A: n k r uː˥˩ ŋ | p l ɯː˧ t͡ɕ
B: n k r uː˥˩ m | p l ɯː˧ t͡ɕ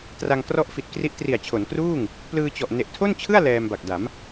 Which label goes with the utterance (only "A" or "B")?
A